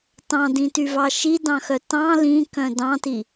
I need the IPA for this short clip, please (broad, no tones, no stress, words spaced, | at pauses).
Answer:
tɑ̃dĩtyvɑ ʃidɑ̃xœ tɑ̃ lĩkœ̃ dɑ̃ti